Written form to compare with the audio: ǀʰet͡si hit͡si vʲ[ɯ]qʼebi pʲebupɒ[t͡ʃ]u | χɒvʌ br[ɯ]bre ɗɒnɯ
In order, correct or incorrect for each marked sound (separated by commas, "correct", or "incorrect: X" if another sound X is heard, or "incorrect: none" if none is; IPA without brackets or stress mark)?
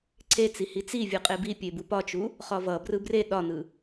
correct, correct, correct